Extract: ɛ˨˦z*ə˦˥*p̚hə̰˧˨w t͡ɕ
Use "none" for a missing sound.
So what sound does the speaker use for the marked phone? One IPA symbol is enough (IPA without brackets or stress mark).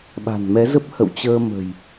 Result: ə˦˥